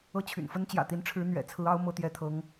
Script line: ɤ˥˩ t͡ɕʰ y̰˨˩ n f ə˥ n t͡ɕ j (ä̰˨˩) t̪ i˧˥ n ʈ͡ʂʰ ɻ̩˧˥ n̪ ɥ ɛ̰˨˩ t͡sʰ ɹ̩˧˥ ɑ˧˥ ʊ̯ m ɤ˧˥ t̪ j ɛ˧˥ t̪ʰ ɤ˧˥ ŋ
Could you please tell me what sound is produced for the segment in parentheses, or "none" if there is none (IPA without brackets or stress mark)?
ä̰˨˩